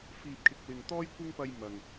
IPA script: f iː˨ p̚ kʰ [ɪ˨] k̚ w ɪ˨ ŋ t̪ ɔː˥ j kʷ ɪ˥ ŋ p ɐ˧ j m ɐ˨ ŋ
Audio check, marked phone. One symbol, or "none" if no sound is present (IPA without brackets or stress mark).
ɪ˨